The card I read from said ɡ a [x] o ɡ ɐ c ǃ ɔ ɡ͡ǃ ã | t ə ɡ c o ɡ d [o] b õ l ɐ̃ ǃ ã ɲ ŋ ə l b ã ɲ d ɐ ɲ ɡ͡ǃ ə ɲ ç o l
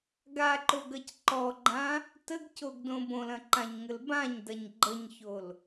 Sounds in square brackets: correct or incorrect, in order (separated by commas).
incorrect, incorrect